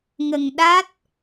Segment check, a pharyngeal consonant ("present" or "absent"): absent